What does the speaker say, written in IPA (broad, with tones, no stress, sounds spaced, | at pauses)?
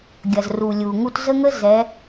ɡʲ ɐ˨ z r u˨ lʲ u˨ ŋ u˦ t z ə˦ ŋ ə˦ z ɛ˨˦